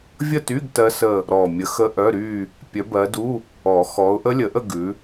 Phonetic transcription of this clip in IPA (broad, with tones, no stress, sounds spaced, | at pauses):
vʲ ə˥˧ t y˧˥˧ ɡ t ɜ˦˥ s ə˥˧ | ɾ ɔ˨˩ mʲ ə˨˦ x ə˦˥ ʔ œ˧˥˧ ɾ y˥˧ | pʲ œ˨˦ b ɜ˨˦ d u˧˥˧ | ɔ˨˩˦ x ɔ˨˦ ʊ̯ ʔ ə˦˥ lʲ ə˨˩˦ ʔ ə˥˧ ɡ ʉ˨˦